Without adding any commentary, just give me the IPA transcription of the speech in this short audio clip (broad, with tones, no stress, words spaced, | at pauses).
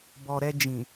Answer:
bɔ˨ɾɛ˧d͡ʒĩ˨